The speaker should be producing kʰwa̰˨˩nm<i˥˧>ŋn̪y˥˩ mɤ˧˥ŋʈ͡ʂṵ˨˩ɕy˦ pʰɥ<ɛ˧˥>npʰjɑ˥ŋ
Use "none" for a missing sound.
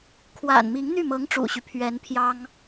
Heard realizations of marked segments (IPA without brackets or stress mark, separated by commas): i˧˥, ɛ˧˥